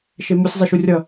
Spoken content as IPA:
ʃ e m u sʲ zˤ e ʃ u rʲ ʌ

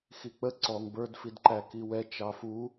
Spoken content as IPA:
x i k͡p ə ǀ ɔ ŋ b ə˞ d f i d ǃ æ k i w ɛ t͡ʃ ɑ f u

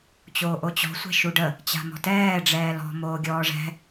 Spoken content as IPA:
t͡ɕ oː ʔ o t͡ɕ ɔ̤ sʷ ɛ̤ ʃ u ɖ ə | t͡ɕ a̤ m ɔ̤ t ɛː ɖ͡ʐ ɛː l ɔ̤ m oː ɡʲ ɔː ʐ ɛ̤

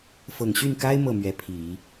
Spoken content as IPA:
f ɤ˨˩ ŋ ɕ y˥˩ n k a˥ ɪ̯ m ɤ˥˩ m ɥ ɛ˧˥ pʰ i˨˩˦

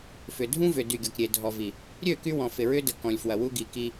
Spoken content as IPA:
f ʏ˨ dʱ ũ˦ v ʏ˨ d y˨ ɡʲ ɔ˨ k ɾʲ e˨ dʱ ɔ˨ v i˨ | ɾʲ ø˦˨ k y˦ w ɔ̃˨ f ɪ˨ ɹ ʏ˦ d ə˨ k ɔ̃˨ lʲ f w ɐ˨ w u˦ ɡ i˨ k i˦

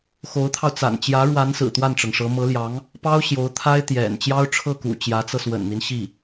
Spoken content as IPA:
x o˧˥ ʊ̯ t̪ʰ ɑ˧ ʊ̯ t͡s a̰˨˩ n t͡ɕ j ä˧˥ ɻ w a˧˥ n s ɹ̩˨˩ t̪ w a˥˩ n ʈ͡ʂ ɤ˩ ŋ ʂ ɤ˧˥ m ɤ˧˥ l j ɑ˧˥ ŋ | p ɑ˥ ʊ̯ ɕ j o˧˥ ʊ̯ t̪ʰ a˥ ɪ̯ t̪ j ɛ̰˨˩ n t͡ɕ j ɑ˥ ʊ̯ ʈ͡ʂʰ ɤ˥˩ k ṵ˨˩ t͡ɕ j ä˧˥ t͡s ɤ˧ s w ə̰˨˩ n n̪ i˦ n ɕ i˥˩

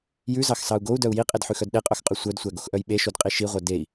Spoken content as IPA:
j ʉ z ɑ x s ɑ u̯ ɡ o u̯ d œ u̯ j i qʼ e d ħ ʉ x œ d ɗ e qʼ œ x qʼ ʉ sʷ œ d sʷ æ ɡ o x ʔ œ j ɓ e ʃ o d qʼ i ʃ i ʁʷ œ d e i̯

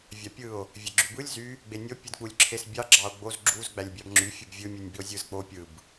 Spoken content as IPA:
vʲ ɑ pʲ ɯ o̯ | vʲ e ɡ͡ǁ y b ɯ lʲ z y | ɡ͡b e nʲ o pʲ ɯ d k͡p u lʲ ǁʰ e s bʲ ɑ ɡ͡ǁ ɑ o̯ ɡ͡b o z ɡ͡ǁ u z ɡ͡b æ lʲ bʲ ɑ b ŋ͡ǁ y fʲ ɯ b vʲ ɯ mʲ ɯ nʲ b i o̯ zʲ ɯ z k͡p o pʲ ɯ b

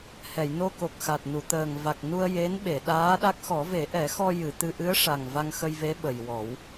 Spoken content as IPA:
h ɛ˨˩˨ j n o˧ k o˨˩ k̚ x a˨˩ t̚ n u˨˩˨ t̪ əː˨˩ ŋ v a˨˩ k̚ n u˧ ə̯ j e˧˥ n ɓ e˨˩˨ ɗ aː˧˥ ɗ a˦˥ k̚ x ɔ˨˩˦ v e˨˩˦ ʔ ɛ˨˩˦ x ɔ˧ j ɨ˨˩˨ t̪ ɨ˧ ʔ ɨ˧˥ ə̯ ʂ a˨˩ ŋ v a˧ ŋ x ə˧ j v e˧˥ ɓ ə˨˩ j w ɔ˨˩˦ w

